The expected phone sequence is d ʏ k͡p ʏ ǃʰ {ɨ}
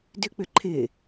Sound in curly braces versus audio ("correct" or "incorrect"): incorrect